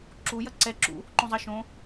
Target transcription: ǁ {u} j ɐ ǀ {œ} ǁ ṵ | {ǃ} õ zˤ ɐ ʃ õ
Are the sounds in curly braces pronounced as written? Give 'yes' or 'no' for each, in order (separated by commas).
yes, no, yes